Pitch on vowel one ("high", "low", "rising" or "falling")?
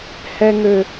high